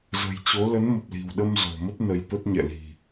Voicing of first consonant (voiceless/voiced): voiced